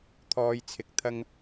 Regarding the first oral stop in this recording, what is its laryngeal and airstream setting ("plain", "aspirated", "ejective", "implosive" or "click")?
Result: aspirated